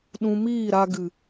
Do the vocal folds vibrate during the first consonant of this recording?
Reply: yes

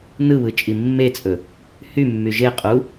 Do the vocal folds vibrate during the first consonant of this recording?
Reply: yes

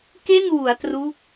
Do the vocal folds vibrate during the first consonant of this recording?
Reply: no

